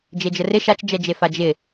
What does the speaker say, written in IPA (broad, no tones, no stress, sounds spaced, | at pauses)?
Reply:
d͡ʒ e d͡ʒ ə r ɪ ʃ a t͡ʃ d͡ʒ ɛ d͡ʒ e f a d͡ʒ ɪ